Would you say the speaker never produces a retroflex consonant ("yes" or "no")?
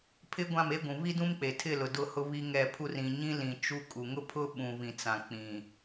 yes